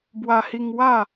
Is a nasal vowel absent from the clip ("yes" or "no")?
yes